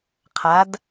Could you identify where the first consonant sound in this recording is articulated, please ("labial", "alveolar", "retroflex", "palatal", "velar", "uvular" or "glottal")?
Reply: uvular